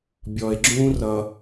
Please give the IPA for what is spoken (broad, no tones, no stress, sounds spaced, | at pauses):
bʲ ɔ e̯ ɡ͡ǁ ũː r ʌ